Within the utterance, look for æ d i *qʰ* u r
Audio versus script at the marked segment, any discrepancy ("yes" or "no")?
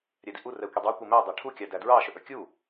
yes